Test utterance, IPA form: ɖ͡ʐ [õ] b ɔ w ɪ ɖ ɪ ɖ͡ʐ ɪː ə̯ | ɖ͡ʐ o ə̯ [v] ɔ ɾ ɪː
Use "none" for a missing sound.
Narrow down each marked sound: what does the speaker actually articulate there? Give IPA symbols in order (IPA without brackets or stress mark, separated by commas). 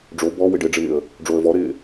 o, v